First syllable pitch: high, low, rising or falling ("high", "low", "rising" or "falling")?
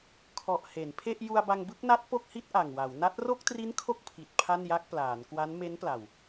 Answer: low